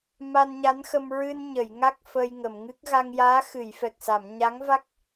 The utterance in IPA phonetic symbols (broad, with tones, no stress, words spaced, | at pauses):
ma˧nɲa˧˥nxə˧m ɹɨ˧nɲə˨˩˨j ŋa˦˥k̚ fəː˧jŋə˨˩˨mŋɨ˦˥k̚ ɣa˧ŋjaː˧˥ xɨ˨˩˨jfɛ˨˩k̚sa˨˩˨m ɲa˧˥ŋva˦˥k̚